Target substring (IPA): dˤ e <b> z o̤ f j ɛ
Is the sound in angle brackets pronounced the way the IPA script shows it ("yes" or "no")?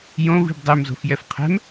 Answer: no